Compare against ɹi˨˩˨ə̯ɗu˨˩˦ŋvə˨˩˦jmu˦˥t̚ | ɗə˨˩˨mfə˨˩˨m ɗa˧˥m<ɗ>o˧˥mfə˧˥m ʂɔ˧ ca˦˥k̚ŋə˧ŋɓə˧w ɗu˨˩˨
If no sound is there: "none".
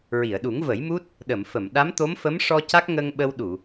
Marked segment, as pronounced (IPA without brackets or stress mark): t̪